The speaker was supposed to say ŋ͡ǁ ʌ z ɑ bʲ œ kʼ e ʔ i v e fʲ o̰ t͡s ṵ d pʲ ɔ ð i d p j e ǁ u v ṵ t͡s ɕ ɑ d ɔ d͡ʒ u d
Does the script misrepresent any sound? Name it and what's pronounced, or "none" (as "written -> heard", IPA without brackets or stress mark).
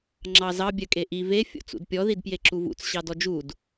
ʌ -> ɑ